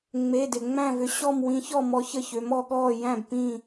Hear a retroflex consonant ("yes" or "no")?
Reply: no